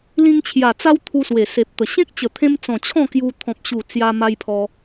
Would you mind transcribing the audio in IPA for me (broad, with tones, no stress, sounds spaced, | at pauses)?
l ĩ˧ ŋ t͡ɕʰ j a˨˩ t͡s a˦ w t̪ʰ u˧ s w e˨˩ s e˨ p̚ t̪ ə˨˩ ɕ ẽ˦ k̚ t͡ɕ ə˨˩ t̪ʰ ẽ˧ m t͡s ɔ̃˨˩ t͡ɕʰ ɔ̃˥˧ k j u˧ t̪ʰ ɔ̃˦ p̚ ɕ u˥˧ t͡s j a˦ m a˦ j pʰ ɔ˧